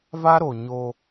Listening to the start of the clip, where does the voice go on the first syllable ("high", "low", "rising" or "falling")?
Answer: high